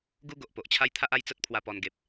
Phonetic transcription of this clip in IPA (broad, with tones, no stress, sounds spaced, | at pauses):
ɡ u˦ ɡ o˨ ʔ p o˨ ʔ t͡ɕʰ a˦ j t̪ʰ a˦ ʔ a˦ j t͡s ə˦ t̚ pʰ w a˧ p ɔ˧ n ɡ e˨ p̚